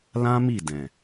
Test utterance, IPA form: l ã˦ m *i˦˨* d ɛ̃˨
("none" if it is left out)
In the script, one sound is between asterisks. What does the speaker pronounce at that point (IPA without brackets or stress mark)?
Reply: i˦˨